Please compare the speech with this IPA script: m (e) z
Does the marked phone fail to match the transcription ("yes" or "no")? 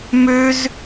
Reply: yes